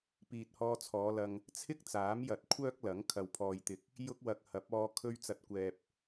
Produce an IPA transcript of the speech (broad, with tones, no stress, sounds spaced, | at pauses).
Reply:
p iː˨ t̚ h ɔː˧ t͡sʰ ɔː˨˧ l ɐ˨ ŋ | t͡sʰ ɪ˥ k̚ t͡s aː˨˥ m j ɐ˨˥ t̚ kʷʰ œː˥ k̚ l ɐ˨˥ ŋ kʰ ɐ˨ w pʰ ɔː˨ j t̪ ɪ˨ k̚ | j ʊ˥ k̚ w ɐ˧ k̚ h ɐ˨˥ p̚ ɔː˧ kʰ ɵ˧ ɥ t͡s ɐ˨˥ t̚ kʷ ɛː˨ p̚